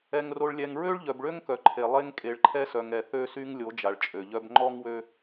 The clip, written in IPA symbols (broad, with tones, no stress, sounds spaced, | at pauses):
ɛ˨ ŋ r o˨ ɭ lʲ ɛ˨ ŋ ɹ ø˦ ɭ ʎ œ˨ b ɭ ø˦ ŋ k œ˨ ǃʰ e˨ lˠ e˦ ŋ kʼ e˨ ɭ ǃʰ ɛ˦ s œ˨ ŋ ɛ˨ θ ø˦ s y˦ ŋ lʲ o˨˦ d͡ʒ a˨ ɭ t͡ʃʼ ø˨ ʎ œ˦ b ŋ͡ǃ ɔ˦ ŋ w ø˦